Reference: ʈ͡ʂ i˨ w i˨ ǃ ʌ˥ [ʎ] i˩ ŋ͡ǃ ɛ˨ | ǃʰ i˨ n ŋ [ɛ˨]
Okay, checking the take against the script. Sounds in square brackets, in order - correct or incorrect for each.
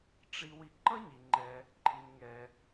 incorrect, correct

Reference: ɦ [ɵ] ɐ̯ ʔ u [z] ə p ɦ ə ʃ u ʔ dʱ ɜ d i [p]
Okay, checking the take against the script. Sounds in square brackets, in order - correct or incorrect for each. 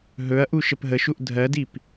correct, incorrect, correct

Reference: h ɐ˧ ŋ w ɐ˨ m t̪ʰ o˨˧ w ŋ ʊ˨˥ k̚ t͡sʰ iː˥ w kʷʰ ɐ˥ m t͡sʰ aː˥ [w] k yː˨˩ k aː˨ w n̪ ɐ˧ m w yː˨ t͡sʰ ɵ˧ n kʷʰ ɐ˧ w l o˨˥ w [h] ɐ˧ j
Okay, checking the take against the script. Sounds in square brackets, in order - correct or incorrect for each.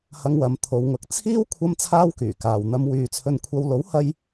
correct, correct

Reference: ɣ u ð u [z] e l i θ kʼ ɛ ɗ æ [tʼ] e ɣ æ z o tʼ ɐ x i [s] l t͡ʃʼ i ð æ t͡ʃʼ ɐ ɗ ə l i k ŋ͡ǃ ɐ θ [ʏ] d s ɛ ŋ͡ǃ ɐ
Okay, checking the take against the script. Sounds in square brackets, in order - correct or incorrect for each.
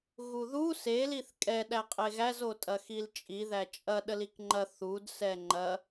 incorrect, incorrect, incorrect, incorrect

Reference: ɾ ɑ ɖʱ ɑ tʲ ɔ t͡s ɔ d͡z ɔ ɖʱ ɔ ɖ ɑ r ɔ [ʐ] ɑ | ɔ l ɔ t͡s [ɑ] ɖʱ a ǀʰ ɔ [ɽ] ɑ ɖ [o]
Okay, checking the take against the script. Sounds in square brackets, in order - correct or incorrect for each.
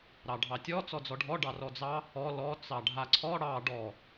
incorrect, correct, correct, incorrect

